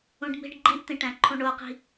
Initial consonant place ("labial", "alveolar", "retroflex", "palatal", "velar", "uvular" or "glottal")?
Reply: retroflex